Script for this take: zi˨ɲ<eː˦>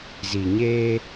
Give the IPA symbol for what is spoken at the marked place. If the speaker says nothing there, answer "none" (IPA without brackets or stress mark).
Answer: eː˦